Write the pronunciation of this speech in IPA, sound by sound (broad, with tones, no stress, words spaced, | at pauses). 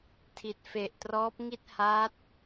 tʰi˨˩t̚fe˨˩ʔtrɔː˦˥p̚ ŋi˥˩t̚ ha˦˥t̚